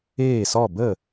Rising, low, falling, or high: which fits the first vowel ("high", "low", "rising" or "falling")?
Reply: falling